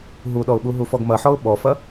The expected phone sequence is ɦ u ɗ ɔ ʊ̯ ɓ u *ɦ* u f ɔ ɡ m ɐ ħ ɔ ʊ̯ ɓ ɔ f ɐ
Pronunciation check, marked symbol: correct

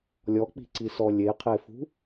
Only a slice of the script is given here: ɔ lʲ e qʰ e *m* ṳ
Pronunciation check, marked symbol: incorrect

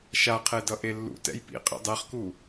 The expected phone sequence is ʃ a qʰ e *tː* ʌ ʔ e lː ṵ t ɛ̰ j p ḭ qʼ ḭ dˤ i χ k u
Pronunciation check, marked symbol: incorrect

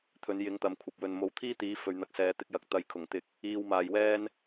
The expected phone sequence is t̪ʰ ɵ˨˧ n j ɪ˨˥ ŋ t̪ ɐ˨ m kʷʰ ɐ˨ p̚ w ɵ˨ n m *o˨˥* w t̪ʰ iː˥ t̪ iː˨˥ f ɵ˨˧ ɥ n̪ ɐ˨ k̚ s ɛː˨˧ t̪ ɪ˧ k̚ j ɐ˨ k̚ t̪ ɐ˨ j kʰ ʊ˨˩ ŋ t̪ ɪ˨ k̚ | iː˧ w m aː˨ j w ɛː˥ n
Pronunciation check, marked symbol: correct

